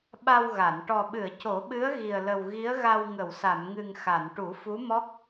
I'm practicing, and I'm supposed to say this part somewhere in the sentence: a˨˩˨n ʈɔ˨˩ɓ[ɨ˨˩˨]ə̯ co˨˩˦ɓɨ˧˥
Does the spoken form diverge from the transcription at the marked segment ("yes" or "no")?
no